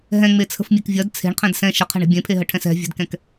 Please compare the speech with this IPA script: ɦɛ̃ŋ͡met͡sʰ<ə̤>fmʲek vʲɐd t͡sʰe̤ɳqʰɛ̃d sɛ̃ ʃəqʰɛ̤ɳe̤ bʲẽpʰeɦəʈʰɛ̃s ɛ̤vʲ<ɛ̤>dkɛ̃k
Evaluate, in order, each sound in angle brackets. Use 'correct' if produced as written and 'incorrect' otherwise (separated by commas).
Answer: correct, correct